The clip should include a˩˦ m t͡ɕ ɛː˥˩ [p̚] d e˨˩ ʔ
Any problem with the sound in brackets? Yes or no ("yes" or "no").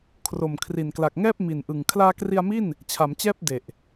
no